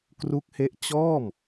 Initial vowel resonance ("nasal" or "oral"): oral